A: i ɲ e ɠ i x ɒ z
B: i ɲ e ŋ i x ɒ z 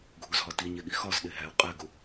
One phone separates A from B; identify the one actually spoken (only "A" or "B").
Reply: A